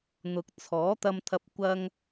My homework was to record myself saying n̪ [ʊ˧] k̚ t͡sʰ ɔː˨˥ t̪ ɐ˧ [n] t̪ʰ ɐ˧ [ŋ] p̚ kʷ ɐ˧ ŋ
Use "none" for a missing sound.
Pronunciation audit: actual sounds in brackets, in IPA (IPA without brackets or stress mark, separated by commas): ʊ˨, m, none